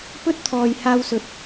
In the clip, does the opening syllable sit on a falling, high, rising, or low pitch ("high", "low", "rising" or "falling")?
high